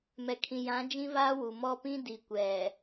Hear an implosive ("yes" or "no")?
no